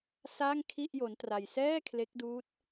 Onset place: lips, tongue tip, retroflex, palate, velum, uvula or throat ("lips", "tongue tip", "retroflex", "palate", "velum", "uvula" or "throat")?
tongue tip